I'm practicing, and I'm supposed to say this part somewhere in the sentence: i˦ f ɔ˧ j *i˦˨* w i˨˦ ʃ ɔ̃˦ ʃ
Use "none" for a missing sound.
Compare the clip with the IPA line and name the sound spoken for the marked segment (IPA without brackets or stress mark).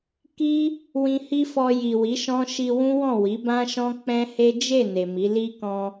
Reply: i˨